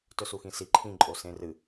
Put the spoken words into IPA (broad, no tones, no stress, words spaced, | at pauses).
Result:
tɵsuxĩsi ǃʰĩǃʼo sẽrɨ